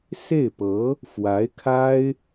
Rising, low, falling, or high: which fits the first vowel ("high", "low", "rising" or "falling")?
falling